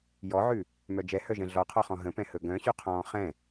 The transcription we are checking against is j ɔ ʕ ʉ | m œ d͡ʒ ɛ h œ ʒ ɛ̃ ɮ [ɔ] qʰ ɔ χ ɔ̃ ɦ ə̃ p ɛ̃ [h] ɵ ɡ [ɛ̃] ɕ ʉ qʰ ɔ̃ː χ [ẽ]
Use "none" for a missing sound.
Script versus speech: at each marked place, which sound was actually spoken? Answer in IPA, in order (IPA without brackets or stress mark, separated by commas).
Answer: ɔ, h, œ̃, ɛ̃